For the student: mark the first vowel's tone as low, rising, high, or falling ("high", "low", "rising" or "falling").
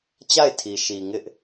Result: falling